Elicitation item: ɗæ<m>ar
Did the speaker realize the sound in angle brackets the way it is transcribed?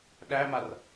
yes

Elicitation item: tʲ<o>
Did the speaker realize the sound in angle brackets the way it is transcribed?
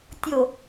yes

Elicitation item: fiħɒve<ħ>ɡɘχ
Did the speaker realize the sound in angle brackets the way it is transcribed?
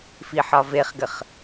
no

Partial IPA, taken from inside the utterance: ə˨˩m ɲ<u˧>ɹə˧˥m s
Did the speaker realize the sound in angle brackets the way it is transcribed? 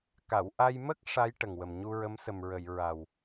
yes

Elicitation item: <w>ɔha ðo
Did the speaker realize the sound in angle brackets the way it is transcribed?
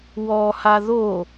yes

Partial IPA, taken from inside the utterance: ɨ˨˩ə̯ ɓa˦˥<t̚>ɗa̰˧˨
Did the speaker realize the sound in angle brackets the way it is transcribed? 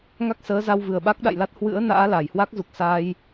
no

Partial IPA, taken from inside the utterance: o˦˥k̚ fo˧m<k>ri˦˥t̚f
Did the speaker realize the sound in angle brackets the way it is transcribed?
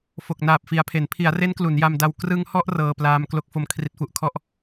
no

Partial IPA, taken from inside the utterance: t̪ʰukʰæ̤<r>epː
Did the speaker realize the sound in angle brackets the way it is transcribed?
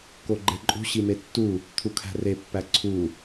yes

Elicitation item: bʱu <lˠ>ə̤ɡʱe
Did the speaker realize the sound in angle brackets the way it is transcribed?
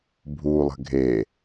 yes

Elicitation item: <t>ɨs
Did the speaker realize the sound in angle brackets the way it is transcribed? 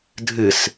no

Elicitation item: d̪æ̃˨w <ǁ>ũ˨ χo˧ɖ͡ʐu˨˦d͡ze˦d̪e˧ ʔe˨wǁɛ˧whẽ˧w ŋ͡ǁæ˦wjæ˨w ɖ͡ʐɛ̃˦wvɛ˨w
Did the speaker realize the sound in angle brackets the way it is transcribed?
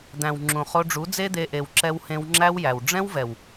no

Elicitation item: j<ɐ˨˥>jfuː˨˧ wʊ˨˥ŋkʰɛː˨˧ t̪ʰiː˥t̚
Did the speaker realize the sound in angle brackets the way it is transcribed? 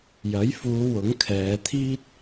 yes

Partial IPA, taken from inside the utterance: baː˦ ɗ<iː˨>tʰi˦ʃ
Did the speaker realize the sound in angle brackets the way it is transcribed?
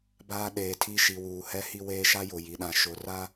no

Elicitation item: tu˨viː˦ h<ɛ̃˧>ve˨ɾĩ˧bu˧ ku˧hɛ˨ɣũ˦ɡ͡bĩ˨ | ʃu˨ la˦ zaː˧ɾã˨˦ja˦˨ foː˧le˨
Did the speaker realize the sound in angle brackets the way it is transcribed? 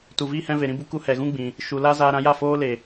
yes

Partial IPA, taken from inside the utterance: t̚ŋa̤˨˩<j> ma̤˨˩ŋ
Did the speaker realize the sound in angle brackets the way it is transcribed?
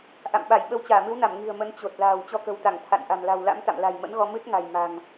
yes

